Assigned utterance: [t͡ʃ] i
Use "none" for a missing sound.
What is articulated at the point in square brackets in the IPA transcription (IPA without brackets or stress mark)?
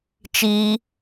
t͡ʃ